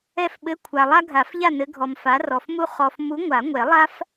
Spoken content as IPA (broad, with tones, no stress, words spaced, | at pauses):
ɛ˥˨fɓɘ˧˥˧kʷʰa˨ lˠa˥ɡʱa˨˩˦fʎa˥˨ nɘ˨˥ɡʱɔ˨mfa˨˥ rɔ˨fmu˥ χɔ˨f mu˨˥ ŋʷa˨˩˦ŋʷɛ˨˩˦lˠa˥f